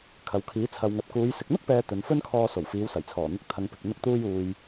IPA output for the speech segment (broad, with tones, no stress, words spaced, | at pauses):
kʰɐ˨wkʰiː˨˥ t͡sʰɐ˨wŋɐ˨t̚kuː˨˧j sɪ˨k̚n̪ʊ˥k̚pɛː˨ t̪ɵ˨˧nfɵ˥nkʰɔː˧ so˨˩wfiː˨˧wsɐ˨˩jt͡sʰɔː˨˩ n̪ʊ˧k̚ t̪ʰɐ˨ŋ pɪ˨k̚ n̪ʊ˧k̚t̪uː˧juː˨j